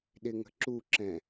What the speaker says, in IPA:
ɗ ɪ ŋ ə̤ ǁ u ǁ ɛ̃

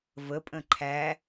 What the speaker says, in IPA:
v ə pʼ ə̃ ǃʰ æ

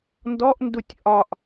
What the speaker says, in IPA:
n d ɔ ʔ n d u tʲ ʔ ɒ ʔ

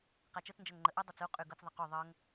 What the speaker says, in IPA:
q a t͡ʃ ɤ t͡s n d͡ʒ ɤ ŋ ŋ͡ǃ ə ʔ y dˤ ɤ t͡s u qʼ y ɡ ɤ t͡s ðˤ ə q u ðˤ ɤ ŋ

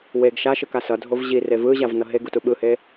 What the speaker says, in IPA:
w e ɡ ʃ a ʃ ɯ k a s ʌ dʱ o v ʑ i r e v ɯ ʑ a v n ʌ ɦ e ɡ u t u ɓ ɯ h e

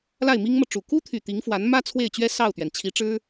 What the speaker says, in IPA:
l a˥˩ ɪ̯ m i˥ ŋ m ɤ˨ ʈ͡ʂ u˨˩ k u˥ t̪ʰ y˨˩ t̪ i˧˥ ŋ f w a˧˥ n m ä˥ t͡sʰ w e˥˩ ɪ̯ t͡ɕ ɥ ɛ˥ s ɑ˥˩ ʊ̯ t̪ ɥ ɛ˩ n t͡ɕʰ i˧˥ ʈ͡ʂ ɻ̩˥

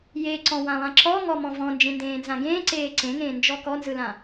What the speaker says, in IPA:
j e ǀ ɔ̃ w ã lˠ ã ǁ ɔ ŋ ɔ m ɔ̃ v ɔ̃ n d͡ʒ ẽ n d ẽː n z ã ɡ ẽː ǀ eː ǀ ẽ ŋ ẽː n d͡ʒ ɔ k ɔ n z ɯ l ã

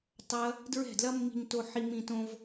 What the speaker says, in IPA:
tˤ ɐ˦ | d ɹ ɛ̤˦˨ d l ɐ˦ mː i̤˧ ɲ t o˧ ħ i˧ m ĩ˧ t õ˧ v

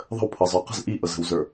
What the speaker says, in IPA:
ðˤ ə̤ w pʰ ɤ zˤ ə˞ q ə̤ z ʔ i ʔ ɤ z ə̤ w z ə˞

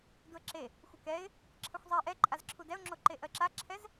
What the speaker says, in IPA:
d u ə̯ ǁ e | xʷ ə k ɛ ɪ̯ | ǁʰ ə xʷ zˤ ɛ ʔ ɛ ǃʼ a z ǁʰ u d ɛ ʊ̯ ŋ͡ǁ o ǃ e ʔ ɜ ǁ a ǁʰ ɛ z

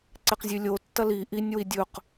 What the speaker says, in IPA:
ǀ e q zʲ ʉ lʲ o tː ɐ l i ʔ i nʲ w i dʲ ɵ q

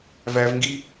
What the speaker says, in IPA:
v æ v ŋ ɡ i

